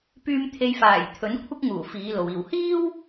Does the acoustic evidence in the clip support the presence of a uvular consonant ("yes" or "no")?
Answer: no